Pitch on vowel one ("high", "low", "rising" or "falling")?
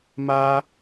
high